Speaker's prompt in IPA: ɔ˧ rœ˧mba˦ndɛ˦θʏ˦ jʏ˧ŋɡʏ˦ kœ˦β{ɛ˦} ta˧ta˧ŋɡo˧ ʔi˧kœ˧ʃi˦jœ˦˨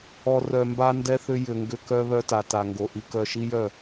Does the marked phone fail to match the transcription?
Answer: yes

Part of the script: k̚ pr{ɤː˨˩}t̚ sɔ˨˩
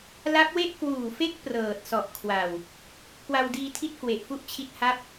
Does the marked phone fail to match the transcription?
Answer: no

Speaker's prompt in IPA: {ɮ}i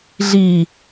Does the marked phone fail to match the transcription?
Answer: no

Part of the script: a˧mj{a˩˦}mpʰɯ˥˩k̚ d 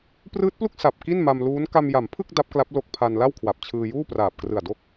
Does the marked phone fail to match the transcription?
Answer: no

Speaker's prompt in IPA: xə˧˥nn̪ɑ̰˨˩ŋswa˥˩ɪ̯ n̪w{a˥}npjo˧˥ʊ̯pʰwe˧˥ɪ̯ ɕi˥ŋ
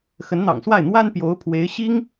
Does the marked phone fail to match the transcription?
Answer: no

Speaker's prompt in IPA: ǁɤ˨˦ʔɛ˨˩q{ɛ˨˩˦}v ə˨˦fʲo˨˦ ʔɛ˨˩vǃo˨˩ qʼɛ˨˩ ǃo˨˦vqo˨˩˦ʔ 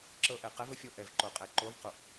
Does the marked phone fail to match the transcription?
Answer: yes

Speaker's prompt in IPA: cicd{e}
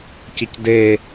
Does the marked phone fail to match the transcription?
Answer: no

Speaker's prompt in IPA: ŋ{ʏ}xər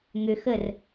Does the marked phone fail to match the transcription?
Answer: no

